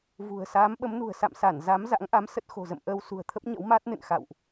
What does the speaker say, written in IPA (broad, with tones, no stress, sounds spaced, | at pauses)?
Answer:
v ṳ˨˩ ə̯ s aː˨˦ m ɓ ə˨˦ m n ṳ˨˩ ə̯ s a̰˧˨ m s a˧˩ n z a˨˦ m z a̰˧˥ ŋ ʔ a˨˦ m s ə˦˥ t̚ x o̤˨˩ z ə̰˧˨ m ʔ əː˧ w s ṳ˨˩ ə̯ t̪ʰ ə˦˥ p̚ ɲ ə̰˧˥ w m aː˦˥ t̚ n ɨ̰˧˨ n x a̰˧˨ w ʔ